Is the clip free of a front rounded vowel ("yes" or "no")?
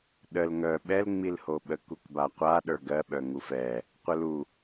no